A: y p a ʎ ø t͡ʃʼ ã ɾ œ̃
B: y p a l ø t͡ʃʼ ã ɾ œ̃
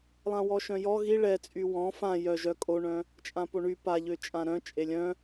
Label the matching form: A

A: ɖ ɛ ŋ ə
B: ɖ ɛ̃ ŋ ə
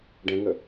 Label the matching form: B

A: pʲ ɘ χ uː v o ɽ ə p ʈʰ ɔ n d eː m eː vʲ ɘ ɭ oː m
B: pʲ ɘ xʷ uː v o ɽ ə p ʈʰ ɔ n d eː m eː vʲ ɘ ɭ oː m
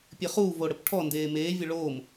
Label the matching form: A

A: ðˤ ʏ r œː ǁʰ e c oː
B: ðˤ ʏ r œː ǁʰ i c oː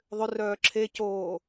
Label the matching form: A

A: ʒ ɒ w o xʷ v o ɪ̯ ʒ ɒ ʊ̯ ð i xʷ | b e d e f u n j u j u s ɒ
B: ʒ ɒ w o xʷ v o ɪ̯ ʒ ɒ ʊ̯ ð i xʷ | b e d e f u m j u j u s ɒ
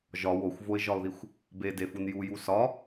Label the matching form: A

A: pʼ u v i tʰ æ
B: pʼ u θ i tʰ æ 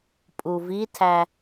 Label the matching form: A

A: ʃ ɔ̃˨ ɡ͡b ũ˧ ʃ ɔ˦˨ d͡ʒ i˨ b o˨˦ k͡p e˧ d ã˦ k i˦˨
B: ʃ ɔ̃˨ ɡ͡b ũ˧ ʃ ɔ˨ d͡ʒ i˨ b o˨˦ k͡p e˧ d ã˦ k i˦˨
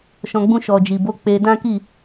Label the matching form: B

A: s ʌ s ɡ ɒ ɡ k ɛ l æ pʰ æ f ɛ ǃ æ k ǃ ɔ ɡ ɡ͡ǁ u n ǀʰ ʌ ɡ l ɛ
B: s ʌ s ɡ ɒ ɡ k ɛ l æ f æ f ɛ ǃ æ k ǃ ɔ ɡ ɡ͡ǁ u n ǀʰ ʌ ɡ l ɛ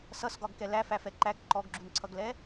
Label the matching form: B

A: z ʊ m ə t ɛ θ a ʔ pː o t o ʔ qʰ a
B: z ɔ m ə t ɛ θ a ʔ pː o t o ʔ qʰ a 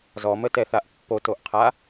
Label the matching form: B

